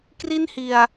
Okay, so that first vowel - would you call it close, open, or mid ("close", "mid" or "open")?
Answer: close